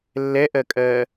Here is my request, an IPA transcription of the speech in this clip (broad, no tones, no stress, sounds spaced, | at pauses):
lː ɛ ʔ ɜ kʼ ɜ